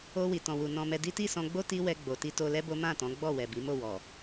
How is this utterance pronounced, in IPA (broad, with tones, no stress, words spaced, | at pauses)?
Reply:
o˧ wi˨tɔ̃˨wu˨ nɔ̃˧mɛ˧di˦ ti˦˨ sɔ̃˧ ɡ͡bo˦ ti˦wɛ˧ ɡ͡bo˨ ti˧to˧lɛ˦ bo˦mã˦˨tɔ̃˨˦ ɡ͡bɔ˦˨wɛ˨bi˨˦mo˦˨ wɔ˨